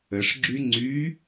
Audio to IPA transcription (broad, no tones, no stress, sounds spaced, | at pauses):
ə ʂ ɡ͡ǁ y ŋ͡ǀ y